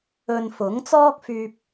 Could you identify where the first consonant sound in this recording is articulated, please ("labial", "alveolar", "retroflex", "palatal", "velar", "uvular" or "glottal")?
alveolar